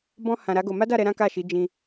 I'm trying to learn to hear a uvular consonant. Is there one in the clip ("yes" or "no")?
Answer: no